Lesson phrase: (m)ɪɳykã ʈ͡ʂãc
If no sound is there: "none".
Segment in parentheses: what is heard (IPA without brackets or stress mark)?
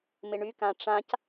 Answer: m